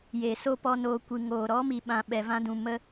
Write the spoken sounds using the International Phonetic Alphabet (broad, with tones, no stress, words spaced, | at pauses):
jeː˨ so˦pɔ˧noː˧ kʷɨ˨ŋoː˨ɾɔ˨˦ mi˨ɓã˨ ɓɛ˨vã˧dũ˨ mə˧